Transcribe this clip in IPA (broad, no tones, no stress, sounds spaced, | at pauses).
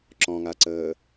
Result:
ǁ ɔ̃ ŋ a ǀ əː